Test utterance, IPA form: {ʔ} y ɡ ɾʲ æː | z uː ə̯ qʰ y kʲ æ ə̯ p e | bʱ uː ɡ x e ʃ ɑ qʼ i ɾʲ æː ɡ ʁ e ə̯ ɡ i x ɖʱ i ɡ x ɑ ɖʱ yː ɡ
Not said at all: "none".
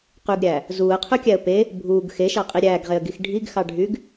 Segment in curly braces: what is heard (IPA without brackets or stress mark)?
q